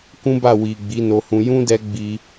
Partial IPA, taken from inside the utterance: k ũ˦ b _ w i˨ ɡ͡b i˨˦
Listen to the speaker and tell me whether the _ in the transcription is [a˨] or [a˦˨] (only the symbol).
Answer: a˦˨